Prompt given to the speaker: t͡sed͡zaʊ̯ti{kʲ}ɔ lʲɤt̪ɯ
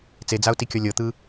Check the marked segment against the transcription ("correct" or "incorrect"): correct